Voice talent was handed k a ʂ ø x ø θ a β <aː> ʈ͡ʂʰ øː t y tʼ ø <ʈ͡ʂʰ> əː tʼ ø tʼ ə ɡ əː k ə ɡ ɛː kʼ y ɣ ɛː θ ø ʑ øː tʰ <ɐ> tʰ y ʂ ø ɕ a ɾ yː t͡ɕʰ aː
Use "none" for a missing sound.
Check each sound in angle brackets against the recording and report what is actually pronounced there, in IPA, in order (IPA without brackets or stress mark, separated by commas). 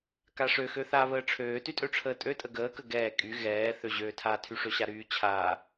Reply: əː, ʈ͡ʂʰ, a